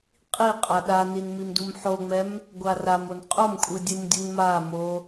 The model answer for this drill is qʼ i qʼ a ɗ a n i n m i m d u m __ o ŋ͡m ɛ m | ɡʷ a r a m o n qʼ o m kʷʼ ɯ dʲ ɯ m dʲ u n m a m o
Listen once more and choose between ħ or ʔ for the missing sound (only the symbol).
ħ